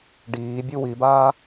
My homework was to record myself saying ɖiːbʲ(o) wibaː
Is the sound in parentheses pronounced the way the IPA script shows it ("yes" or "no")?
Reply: no